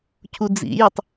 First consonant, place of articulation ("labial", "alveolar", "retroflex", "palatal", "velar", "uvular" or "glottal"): palatal